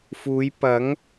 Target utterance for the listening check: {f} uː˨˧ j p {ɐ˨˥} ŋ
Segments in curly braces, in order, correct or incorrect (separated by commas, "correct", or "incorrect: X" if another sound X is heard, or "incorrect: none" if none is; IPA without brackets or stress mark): correct, correct